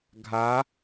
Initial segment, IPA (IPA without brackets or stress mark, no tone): ɡʱ